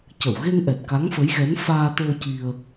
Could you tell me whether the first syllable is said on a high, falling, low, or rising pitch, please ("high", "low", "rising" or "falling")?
low